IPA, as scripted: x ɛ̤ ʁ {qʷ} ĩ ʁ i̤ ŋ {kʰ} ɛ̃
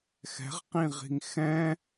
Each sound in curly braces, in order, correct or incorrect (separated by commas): incorrect, incorrect